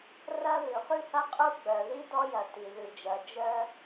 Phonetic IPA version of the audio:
r ɐ˥ ð ʉ˩ χ ʉ˥ h ɐ˥ qʼ u˥ ɡ͡b œ˩ ð i˥ d ɔ˥ j ɐ˩ t i˩ ð ʉ˩ d͡ʒ ɐ˩ d͡ʒ œ˥

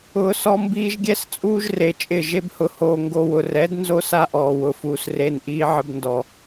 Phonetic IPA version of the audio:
ʊː˨ s ɔ˧ m b iː˧ ʒ ɡʲ ɛ˦ s t͡sʼ uː˦ ʒ r e˨ t͡ʃʼ ɪ˦˨ ʒ e˧ b h ʊ˨ h oː˨ ŋ ɡ o˧ w ʊ˨ r ɛ˨˦ d n z o˦ s a˦ ʔ ɔː˨ w ʊ˨ f uː˨ s r e˦ n ʔ iː˦ ʕ ɪ˧ b n d ɔ˨

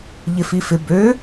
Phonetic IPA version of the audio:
ʎ ɪ f i f ɪ b ø

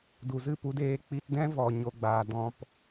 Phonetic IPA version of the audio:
d u˨ z ɨ˦˨ p u˧ d eː˧ k͡p i˧ t d ɛ̃˦ v ɔ˨ ɲ o˧ ɡ͡b aː˨ d ɔ̃˨ p

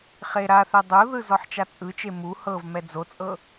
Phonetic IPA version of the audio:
χ e ɾ a θ ɛ dˤ o ð ɯ z ɔ ħ t͡ʃ a t͡sʼ ɯ t͡ʃ e m u h ɤ v m ɛ d͡z o t͡sʼ ɤ

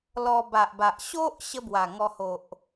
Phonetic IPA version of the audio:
l ɔ˧ b a˨ ʔ b a˨ ʔ ɕ o˦ ʔ ɕ ə˦ b w a˨˩ ŋ ɔ˧ h o˨ ʔ

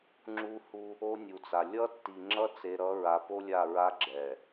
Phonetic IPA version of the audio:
ŋ͡ǁ u˦ h u˦ | o˦ nʲ u˨ t͡s a˨ lʲ ʌ˦ tː i˨ ŋ͡ǁ ʌ˦ t͡s e˨ ɾ ʌ˨˦ ɹ a˨ p o˦ lʲ a˦˨ ɹ a˦ ɡ͡ǁ ɛ˨

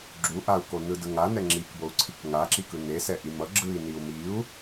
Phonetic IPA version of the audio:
ɡ͡ǁ u ʔ a u̯ k o n ɯ d ɯ ŋ a n ɛ ŋ͡ǁ i k b o u̯ ǀʰ i k ŋ a ǁ i k ɯ n e s ɛ ʔ i m ʌ ɡ͡ǁ ɯ i̯ n i u̯ m i u̯

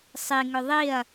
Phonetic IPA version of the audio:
sˤ i ŋ ʏ ðˤ i ɐ̯

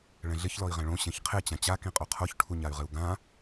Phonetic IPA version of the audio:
ɭ ɛ̃ ɮ ɪ ç l ɔ i̯ ʁ ɛ̃ ɭ õ ɕ ɛ̃ ç qʰ e t͡ɕ ã t͡ɕ a k ĩ qʼ o qʰ o ç ʈʰ u ɲ a y̯ ʁ ɪ u̯ ɡ ã

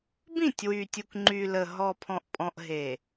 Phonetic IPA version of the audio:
b ĩ˦˨ tʲ w y˨ tʲ u˨ k ŋ͡ǃ y˨ l ə˨ ɦ ɔ˨ pʰ ɔ̃˨ ʔ pʼ ɔ̃˨ ʔ ɦ e˨

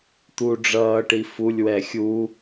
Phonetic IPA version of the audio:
t̪ u ɖ͡ʐ ʌː ʈ i f u lʲ w ɛ xʲ u

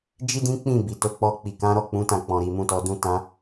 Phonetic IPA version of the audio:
d͡ʒ i˦ d ĩ˦ k͡p ĩ˦˨ b i˨ t o˨˦ k͡p ɔ˧ k͡p i˨ k ã˨˦ ɾ ɔ˦˨ k͡p ũ˨˦ t ã˦˨ k͡p ɔ̃˨ ɾ i˨ m ũ˧ t ɔ˧ d ũ˦ t ã˦

